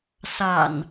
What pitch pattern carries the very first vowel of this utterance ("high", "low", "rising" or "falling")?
low